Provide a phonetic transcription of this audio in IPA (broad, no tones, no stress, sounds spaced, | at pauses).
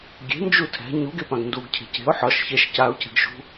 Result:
ɡʲ e̤ n d͡ʒ u tʰ ɛ̤ ɲ u ɡ e p ã ɡ n d u ɡ cʰ e̤ c e̤ ʊ̯ ħ ɒ ʃ ç ɛ ʃ c a ʊ̯ c ɛ̤ ɡ ʃ ṳ